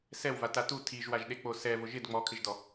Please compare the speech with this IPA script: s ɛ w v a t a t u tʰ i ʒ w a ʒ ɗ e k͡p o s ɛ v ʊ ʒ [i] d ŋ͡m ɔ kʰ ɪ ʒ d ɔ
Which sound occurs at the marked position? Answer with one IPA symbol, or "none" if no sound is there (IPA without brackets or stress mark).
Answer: ɪ